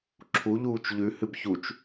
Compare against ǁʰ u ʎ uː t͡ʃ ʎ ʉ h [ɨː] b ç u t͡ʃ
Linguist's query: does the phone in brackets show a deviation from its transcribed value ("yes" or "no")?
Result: yes